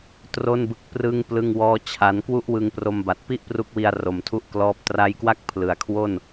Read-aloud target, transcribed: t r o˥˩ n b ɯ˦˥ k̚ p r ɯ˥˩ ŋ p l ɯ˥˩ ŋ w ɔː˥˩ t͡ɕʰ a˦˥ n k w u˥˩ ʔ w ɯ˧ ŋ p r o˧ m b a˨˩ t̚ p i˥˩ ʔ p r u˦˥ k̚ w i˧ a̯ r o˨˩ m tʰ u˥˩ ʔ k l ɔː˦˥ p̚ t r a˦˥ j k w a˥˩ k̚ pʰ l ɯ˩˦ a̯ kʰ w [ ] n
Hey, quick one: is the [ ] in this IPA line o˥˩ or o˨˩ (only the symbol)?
o˥˩